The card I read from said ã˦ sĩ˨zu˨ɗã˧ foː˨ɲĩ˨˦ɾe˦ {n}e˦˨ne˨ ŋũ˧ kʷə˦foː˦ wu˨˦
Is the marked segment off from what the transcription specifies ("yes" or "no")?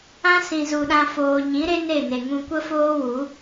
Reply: no